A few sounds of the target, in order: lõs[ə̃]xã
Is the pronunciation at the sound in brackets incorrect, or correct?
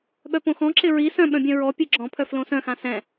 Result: incorrect